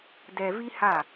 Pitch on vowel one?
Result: low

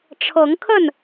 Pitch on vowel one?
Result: rising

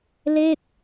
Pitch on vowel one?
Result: falling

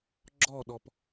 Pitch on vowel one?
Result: falling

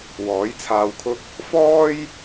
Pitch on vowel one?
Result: rising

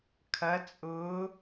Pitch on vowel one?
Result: rising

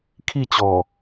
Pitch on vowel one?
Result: falling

